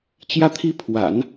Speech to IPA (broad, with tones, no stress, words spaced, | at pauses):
t͡ɕjä˥˧t̪ʰi˥˩pʰwa̰˨˩˦n